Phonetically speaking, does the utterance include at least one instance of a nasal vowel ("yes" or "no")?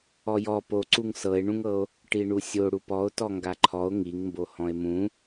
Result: yes